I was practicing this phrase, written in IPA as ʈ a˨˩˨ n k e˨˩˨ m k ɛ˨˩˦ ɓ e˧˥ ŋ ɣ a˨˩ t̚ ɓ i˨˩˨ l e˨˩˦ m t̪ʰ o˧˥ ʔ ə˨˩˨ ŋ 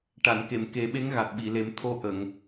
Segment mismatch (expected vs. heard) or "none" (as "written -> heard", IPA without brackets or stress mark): ɛ˨˩˦ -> e˨˩˦